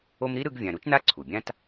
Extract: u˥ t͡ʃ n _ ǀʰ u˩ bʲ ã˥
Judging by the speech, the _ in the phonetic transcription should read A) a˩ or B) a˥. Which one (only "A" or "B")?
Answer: B